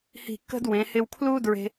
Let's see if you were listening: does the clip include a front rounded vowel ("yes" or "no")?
no